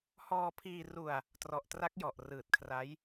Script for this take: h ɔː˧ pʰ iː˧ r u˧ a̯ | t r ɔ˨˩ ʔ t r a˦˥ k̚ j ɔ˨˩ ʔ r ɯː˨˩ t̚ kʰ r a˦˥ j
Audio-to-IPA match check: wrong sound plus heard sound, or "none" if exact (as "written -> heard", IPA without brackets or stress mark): none